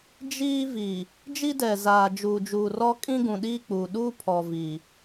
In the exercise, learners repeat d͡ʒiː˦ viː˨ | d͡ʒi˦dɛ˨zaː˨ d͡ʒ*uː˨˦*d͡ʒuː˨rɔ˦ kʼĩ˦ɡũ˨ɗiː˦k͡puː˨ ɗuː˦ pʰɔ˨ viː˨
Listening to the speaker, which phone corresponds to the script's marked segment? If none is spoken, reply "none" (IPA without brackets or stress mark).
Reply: uː˨